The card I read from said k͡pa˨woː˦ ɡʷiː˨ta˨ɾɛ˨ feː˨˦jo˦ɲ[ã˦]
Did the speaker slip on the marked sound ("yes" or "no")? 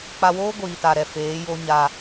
yes